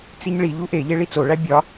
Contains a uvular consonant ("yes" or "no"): no